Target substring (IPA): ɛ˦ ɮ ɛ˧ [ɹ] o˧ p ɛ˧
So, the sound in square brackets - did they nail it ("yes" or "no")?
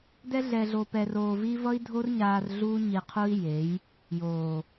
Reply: no